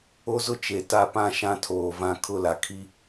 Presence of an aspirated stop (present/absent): present